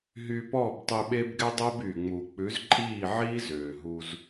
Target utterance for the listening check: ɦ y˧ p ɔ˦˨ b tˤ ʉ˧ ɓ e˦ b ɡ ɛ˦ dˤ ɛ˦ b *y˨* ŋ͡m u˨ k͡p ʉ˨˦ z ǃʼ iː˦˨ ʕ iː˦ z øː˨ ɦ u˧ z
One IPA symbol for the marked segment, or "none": y˨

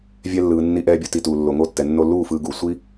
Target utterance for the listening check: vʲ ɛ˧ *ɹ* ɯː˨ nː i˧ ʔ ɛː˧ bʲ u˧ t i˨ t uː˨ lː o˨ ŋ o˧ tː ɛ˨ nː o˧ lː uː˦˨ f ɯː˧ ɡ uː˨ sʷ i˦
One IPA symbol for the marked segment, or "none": lː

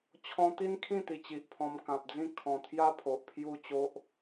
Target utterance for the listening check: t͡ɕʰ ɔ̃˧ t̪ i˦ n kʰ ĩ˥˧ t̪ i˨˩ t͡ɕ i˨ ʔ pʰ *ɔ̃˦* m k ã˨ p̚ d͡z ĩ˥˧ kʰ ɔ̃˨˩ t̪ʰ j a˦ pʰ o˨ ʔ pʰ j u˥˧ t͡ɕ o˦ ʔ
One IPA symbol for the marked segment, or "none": ɔ̃˧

